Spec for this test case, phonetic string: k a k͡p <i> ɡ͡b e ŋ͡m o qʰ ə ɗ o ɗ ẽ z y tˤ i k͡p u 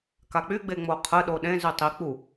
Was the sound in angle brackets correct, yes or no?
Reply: no